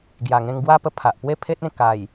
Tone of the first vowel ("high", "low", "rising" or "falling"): low